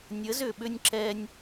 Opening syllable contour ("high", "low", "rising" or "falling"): rising